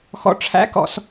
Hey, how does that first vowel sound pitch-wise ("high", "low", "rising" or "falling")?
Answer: low